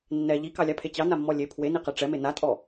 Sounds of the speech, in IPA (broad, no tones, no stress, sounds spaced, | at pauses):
nː ɛ ʎ i k ɑ lʲ a pʰ e t͡ɕ ɑ n a mː ɔ lʲ e pʰ w e n i q ɛ ʈ͡ʂ ɛ m e n a tʼ ɔ